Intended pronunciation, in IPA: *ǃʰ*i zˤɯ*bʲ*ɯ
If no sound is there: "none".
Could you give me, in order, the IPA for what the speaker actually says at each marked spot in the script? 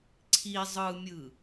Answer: ǀʰ, mʲ

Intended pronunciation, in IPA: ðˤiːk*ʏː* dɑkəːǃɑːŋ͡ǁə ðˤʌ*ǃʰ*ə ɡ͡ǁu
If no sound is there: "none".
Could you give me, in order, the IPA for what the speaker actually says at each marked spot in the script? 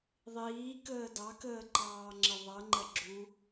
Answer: əː, ŋ͡ǃ

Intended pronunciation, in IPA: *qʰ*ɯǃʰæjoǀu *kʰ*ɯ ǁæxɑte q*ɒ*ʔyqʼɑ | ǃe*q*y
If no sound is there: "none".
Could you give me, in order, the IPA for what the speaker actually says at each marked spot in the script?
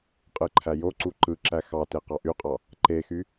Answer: qʼ, ǃ, ɑ, x

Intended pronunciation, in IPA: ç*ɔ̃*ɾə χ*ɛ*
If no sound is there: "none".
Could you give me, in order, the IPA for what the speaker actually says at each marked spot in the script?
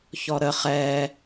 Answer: ɔ, ɛ

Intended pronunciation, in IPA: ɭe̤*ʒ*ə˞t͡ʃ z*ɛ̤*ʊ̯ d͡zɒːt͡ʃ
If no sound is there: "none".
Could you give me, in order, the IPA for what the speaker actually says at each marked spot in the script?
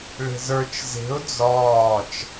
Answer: z, e̤

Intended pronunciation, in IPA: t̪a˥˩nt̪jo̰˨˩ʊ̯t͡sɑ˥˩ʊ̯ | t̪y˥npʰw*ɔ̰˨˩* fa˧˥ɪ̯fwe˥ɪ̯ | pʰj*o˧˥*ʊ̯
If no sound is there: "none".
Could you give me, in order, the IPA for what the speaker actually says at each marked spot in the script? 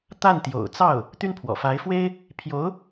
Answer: ɔ̰˨˩, o˧˥

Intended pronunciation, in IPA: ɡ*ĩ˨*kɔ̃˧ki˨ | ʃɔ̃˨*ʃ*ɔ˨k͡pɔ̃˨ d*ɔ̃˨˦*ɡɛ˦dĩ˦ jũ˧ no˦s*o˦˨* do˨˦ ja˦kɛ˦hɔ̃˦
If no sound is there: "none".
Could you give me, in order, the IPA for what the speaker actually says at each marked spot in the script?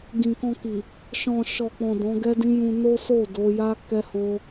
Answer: ĩ˨, ʃ, ɔ̃˨˦, o˦˨

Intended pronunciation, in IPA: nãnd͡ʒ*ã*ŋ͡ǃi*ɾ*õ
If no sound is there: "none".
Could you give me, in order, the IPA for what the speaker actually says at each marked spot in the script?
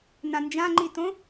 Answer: ã, t

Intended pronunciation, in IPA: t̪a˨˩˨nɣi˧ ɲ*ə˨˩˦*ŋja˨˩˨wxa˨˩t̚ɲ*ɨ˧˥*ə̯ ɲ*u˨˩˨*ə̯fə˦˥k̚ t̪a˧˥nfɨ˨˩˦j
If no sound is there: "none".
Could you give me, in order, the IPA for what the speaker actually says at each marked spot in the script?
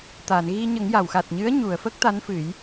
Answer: ə˨˩˦, ɨ˧˥, u˨˩˨

